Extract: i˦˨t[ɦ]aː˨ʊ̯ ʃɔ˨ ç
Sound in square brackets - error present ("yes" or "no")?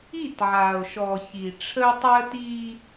yes